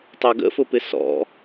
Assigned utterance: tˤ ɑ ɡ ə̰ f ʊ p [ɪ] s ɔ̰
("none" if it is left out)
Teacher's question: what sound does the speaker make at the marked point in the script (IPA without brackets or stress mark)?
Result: ɪ